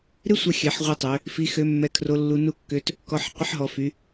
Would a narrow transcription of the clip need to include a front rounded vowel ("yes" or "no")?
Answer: yes